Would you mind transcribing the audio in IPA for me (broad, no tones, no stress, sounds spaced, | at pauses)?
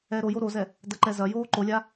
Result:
ɛː ɾ o j o ɾ o z ɛ | d ɐ ǃ ɛ z ɐ j oː ǃ o lʲ a